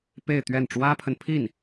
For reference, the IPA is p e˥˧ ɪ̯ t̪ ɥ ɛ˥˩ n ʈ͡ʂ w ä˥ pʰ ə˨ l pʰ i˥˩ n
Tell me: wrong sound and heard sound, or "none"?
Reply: l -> n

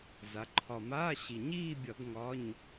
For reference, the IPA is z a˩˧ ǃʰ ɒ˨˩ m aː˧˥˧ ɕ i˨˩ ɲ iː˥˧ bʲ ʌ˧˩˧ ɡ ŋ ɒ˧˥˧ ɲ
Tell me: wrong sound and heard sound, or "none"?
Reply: none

